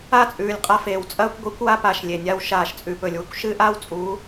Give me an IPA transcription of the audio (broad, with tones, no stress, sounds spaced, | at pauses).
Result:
a˦˨ t͡sʼ ʉː˨ lʲ qʼ a˧ f eː˨ w t͡sʼ ɐː˧ kʷ ɡʷ i˨˦ kʷ w a˧ p aː˨ ʃ lʲ e˨ nʲ a˧ w ʃ aː˨ ʃ t͡sʼ ʉ˨ p ɵ˨ lʲ w ɨ˧ kʷ ʃ ɨː˦ ʔ aː˦ w t͡sʼ u˨˦